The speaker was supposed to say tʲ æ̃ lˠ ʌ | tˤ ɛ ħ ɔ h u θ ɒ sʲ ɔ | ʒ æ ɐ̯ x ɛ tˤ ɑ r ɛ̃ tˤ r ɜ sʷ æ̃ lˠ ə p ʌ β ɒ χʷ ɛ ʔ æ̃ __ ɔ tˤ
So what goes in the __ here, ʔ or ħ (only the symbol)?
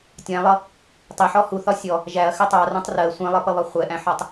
ħ